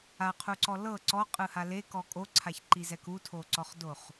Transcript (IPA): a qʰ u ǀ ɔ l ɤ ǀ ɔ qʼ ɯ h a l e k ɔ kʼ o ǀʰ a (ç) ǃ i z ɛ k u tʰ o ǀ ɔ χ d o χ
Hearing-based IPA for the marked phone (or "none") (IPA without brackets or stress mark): ç